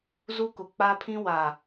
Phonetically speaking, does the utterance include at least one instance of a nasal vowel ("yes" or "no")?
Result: yes